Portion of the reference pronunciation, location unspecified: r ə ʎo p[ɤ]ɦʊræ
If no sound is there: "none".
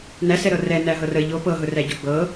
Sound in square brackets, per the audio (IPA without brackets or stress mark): ɤ